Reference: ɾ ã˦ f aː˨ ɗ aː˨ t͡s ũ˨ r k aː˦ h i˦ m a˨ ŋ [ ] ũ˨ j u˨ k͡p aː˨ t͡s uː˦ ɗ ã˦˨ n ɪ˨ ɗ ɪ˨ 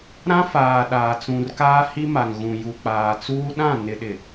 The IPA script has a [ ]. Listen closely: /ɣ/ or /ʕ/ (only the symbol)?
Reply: ɣ